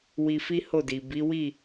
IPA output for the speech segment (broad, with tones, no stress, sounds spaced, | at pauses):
w i˧ f i˦ h o˦˨ d i˨ b i˨˦ w i˦˨